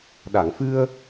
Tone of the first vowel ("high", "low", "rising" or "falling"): low